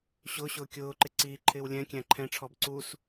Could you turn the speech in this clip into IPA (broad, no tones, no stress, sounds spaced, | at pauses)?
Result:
ɕ ʊː ɕ ʊː kʲ ʊː ǃ ɪ ǀ iː ǃʰ ɪː w lʲ ɛ̃ kʲ æ̃ ǃʰ ɛ̃ ʈ͡ʂʰ ɔ b ǀ u s